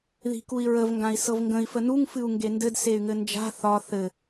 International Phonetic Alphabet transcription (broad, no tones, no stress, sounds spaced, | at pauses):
ð i̤ k u i̯ ɹ ə v ŋ ɡ ã i̯ s ɤ v ŋ ɡ ə̃ i̯ f ə n u ŋ f ɨ u̯ ŋ ɡ e n d ɘ d s e y̯ ŋ ɘ n d͡ʒ a̤ θ ɒ θ ɘ